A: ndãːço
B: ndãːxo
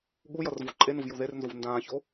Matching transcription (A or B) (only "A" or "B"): A